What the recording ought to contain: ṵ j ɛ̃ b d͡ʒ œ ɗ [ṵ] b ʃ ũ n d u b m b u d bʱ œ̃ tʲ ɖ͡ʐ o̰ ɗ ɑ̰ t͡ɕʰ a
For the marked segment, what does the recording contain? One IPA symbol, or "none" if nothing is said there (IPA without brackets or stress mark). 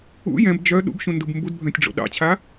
ṵ